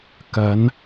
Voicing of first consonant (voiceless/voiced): voiceless